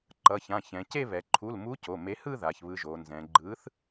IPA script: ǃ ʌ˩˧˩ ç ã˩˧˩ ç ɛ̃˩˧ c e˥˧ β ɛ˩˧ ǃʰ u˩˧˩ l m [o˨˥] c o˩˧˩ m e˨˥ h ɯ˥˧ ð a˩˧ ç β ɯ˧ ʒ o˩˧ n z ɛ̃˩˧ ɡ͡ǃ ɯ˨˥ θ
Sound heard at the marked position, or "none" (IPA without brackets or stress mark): u˨˥